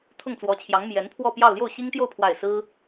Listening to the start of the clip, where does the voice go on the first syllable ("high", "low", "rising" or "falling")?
falling